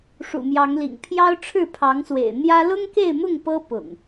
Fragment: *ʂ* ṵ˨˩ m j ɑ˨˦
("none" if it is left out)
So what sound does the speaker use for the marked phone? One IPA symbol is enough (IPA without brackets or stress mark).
ʂ